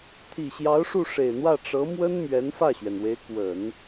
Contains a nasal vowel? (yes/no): no